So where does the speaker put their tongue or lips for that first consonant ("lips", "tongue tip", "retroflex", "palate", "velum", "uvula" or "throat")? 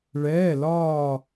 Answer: retroflex